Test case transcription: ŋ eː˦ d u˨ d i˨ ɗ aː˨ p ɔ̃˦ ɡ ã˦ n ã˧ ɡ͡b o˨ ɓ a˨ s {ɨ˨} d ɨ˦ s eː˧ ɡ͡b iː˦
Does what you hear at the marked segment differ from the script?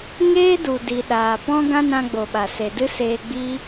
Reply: yes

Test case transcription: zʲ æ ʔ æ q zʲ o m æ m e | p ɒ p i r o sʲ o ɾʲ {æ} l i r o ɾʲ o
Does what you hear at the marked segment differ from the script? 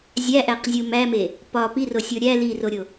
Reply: no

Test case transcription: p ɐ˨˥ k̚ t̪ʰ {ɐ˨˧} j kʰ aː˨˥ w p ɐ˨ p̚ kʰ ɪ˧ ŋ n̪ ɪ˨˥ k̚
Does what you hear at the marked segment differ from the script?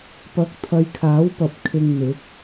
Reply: no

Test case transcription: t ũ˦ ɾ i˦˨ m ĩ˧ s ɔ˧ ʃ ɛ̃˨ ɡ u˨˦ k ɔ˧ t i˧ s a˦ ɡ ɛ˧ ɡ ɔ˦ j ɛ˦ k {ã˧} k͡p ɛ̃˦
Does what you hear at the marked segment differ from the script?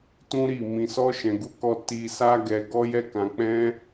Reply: no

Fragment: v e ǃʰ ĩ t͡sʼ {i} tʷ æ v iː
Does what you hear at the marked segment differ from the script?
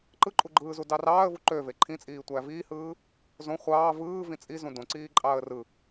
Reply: yes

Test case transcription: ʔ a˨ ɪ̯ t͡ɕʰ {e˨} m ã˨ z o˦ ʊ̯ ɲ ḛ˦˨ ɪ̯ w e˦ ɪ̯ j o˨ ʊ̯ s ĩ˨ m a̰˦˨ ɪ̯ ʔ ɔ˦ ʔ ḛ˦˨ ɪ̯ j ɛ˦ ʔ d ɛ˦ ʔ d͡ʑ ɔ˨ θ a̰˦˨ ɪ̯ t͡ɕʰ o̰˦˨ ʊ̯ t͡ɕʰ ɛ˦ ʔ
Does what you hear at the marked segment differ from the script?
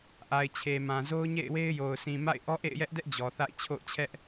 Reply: no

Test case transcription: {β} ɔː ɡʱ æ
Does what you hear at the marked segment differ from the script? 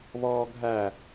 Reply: no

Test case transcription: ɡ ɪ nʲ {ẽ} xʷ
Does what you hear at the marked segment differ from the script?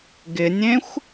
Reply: no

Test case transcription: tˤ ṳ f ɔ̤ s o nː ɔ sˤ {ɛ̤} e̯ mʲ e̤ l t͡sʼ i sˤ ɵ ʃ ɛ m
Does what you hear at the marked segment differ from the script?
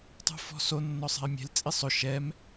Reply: no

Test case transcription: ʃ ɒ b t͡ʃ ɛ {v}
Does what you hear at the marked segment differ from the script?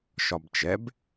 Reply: yes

